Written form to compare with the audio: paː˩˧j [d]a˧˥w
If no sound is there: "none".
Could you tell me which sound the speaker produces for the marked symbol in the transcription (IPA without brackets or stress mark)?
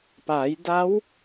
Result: d